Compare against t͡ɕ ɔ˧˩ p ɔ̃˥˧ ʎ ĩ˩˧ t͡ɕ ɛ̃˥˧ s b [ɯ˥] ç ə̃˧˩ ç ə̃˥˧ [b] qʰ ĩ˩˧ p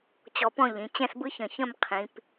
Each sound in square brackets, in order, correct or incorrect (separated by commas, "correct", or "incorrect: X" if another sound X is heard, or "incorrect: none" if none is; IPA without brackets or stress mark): correct, incorrect: m